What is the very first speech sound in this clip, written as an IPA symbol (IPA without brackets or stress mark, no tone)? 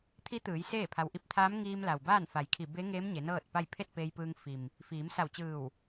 t̪ʰ